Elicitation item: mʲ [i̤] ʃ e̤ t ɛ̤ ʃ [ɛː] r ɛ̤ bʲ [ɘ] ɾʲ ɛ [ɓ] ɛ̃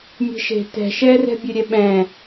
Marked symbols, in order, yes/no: no, yes, yes, yes

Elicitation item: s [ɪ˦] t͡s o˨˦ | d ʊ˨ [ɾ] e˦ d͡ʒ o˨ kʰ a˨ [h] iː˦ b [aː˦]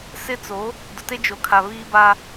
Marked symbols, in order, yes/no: yes, no, no, no

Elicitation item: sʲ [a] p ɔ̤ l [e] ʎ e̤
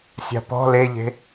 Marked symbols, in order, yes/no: no, yes

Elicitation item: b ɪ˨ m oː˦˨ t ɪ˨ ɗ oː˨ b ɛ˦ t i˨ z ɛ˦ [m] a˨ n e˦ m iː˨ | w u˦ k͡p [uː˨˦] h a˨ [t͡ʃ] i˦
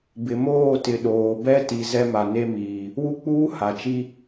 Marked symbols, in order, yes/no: yes, no, yes

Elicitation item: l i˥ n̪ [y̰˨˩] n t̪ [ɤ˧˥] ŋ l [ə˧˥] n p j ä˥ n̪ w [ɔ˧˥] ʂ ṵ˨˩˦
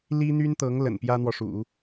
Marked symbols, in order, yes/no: no, yes, no, no

